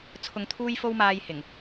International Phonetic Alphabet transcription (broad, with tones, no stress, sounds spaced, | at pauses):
t͡sʰ ʊ˧ ŋ t̪ʰ uː˥ j f o˥ w m aː˧ j h ɪ˨˩ ŋ